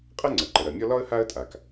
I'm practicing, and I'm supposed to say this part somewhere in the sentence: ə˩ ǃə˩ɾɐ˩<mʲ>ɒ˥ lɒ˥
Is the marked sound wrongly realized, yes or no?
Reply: no